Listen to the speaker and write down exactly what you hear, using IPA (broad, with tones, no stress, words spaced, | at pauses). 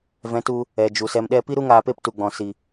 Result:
vɛ̃˨˦tu˧ | ɛ˨ d͡ʒu˨sɛ˧mɗɛ˦ pi˦ɾu˦ ŋaː˧pe˦ptu˨ɡ͡bɔ̃˨ si˨